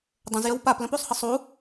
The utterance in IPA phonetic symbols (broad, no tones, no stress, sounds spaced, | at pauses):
dˤ ə̃ z j ə w p a p l ə̃ p u sˤ h ə sˤ u